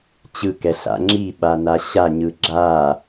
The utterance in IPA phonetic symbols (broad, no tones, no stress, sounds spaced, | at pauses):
t͡ɕ ɯ k ɛ ɬ a̰ ŋ͡ǁ i ɓ a n a ɕ a ɲ ɯ ɡ͡ǁ a